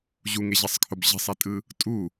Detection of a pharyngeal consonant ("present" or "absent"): absent